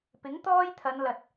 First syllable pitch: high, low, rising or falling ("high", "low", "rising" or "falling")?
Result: rising